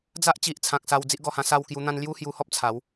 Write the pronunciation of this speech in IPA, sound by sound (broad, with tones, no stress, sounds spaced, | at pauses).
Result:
d͡z a˦ ʔ t͡ɕ i˨ ʔ t͡sʰ ã˨ k̚ s a˧ w d͡z i˦ ʔ ɡ ɔ˧ h ã˧ s a˥˧ w k j u˧ n̪ ã˦ n l j u˦ h j u˧ h ɔ˦ p̚ t͡sʰ a˨˦ w